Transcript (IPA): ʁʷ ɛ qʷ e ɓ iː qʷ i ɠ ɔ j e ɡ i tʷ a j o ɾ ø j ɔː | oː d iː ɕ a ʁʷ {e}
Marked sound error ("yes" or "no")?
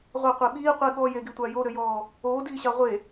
no